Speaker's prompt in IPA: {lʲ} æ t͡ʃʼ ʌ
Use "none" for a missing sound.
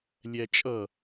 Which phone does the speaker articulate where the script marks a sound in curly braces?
lʲ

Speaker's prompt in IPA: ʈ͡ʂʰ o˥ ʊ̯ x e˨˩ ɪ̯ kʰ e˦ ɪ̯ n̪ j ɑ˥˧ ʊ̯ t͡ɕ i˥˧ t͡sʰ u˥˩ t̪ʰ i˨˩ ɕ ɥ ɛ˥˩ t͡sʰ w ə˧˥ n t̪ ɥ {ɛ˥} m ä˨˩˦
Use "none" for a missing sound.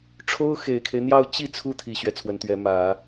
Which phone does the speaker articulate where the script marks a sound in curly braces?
ɛ˧˥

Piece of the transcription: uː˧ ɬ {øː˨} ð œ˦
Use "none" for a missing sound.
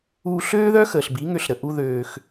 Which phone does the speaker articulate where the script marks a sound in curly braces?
øː˦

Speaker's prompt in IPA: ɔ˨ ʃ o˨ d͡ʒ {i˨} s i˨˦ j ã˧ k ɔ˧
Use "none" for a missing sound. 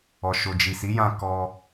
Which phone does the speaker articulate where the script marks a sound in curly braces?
i˨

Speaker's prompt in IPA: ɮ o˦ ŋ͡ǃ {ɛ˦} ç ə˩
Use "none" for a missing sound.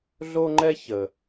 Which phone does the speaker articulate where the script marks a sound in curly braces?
ɛ˦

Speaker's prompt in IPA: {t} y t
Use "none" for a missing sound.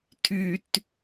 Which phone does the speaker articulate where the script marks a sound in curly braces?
tʰ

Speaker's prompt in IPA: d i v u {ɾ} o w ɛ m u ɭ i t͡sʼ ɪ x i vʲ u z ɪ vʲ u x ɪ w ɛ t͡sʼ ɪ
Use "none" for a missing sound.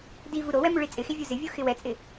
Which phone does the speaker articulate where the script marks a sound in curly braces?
ɾ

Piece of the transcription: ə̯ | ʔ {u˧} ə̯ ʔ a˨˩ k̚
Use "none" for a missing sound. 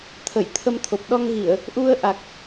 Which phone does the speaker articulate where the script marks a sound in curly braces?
u˧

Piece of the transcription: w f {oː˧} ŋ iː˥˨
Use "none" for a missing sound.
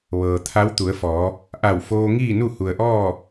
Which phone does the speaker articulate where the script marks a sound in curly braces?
oː˧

